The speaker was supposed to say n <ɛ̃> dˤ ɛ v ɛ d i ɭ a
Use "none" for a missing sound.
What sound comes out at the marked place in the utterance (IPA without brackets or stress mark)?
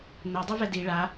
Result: ɛ